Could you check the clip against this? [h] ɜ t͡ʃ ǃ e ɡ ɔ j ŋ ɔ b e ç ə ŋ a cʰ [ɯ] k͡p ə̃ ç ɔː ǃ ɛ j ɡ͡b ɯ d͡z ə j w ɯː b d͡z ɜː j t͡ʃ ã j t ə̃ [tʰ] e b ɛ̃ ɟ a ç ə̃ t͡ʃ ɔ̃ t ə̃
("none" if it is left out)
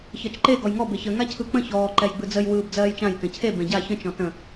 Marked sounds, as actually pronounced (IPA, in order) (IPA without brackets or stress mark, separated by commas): ç, ɯ, cʰ